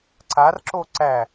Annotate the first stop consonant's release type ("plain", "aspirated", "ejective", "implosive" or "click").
click